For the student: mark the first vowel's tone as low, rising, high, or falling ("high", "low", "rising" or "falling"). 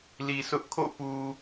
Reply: low